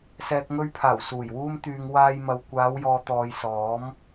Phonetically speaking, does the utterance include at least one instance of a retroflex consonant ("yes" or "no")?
no